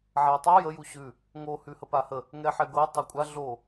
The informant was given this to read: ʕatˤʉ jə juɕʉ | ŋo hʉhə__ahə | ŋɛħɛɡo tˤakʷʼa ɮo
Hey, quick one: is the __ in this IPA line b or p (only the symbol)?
p